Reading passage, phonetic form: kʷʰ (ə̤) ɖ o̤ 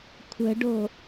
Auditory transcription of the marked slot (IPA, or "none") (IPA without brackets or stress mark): ə̤